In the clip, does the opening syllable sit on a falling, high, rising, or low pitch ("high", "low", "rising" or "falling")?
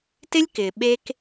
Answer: high